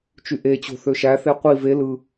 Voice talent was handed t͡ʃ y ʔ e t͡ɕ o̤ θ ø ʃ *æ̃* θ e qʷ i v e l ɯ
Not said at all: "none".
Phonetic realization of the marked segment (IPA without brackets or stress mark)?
æ